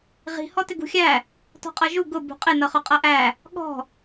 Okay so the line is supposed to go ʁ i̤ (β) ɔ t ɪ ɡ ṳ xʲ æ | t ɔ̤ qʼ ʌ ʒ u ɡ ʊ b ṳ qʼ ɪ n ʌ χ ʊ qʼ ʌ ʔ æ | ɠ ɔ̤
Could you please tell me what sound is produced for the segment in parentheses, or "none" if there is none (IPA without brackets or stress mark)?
h